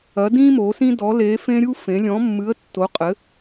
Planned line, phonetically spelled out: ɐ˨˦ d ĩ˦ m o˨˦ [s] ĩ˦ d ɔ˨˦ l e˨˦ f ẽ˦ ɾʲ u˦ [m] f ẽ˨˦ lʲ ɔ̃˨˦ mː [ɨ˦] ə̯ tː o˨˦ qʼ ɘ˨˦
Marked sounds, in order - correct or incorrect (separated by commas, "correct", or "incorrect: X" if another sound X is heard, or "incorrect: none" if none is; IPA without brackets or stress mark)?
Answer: correct, incorrect: none, incorrect: ɨ˨˦